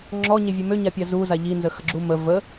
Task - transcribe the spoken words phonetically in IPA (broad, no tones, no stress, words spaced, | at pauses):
ŋ͡ǁɔɲevʲu møɲapʲa zuza ʎinzəxəɡ͡ǁu mə və